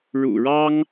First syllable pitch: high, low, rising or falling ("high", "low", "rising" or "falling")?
low